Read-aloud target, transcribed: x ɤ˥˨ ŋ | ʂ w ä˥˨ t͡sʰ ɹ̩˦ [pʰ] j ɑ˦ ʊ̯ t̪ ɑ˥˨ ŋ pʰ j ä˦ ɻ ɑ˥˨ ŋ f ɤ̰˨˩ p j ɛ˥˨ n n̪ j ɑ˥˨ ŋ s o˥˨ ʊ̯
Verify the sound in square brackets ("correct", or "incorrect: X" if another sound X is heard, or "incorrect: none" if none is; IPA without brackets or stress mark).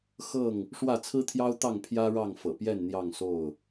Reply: incorrect: t̪ʰ